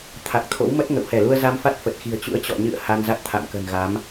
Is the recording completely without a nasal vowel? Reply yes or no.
yes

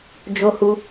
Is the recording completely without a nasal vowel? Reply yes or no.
yes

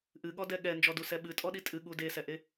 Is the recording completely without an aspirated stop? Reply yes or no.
yes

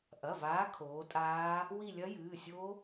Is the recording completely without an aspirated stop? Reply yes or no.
no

